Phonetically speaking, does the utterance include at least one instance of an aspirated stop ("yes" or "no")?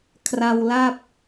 yes